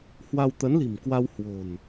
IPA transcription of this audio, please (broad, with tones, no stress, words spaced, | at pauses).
hwa˧wt̪ə˨˦nli̤˨˩mkwa˧w hwo̤˨˩n